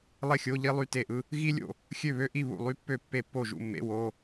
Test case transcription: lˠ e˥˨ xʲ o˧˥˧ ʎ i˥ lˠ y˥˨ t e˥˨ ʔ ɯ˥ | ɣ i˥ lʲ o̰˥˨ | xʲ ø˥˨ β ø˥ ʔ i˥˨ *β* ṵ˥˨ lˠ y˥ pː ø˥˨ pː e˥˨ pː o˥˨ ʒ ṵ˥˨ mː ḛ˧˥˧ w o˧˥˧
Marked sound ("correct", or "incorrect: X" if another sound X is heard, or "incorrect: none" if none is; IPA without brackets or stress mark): correct